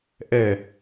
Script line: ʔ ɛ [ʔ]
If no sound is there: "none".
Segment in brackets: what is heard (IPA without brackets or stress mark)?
none